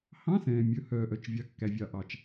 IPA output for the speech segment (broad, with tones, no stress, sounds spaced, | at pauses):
h ɑ̃˧˥˧ s ɛ̃ː˩ mʲ ɵ˩ h œː˩ ʔ œ˩ t͡ʃ vʲ ɑ˩ kː æ˩ vʲ ɑ˩ ʔ ɑ˩ t͡ʃ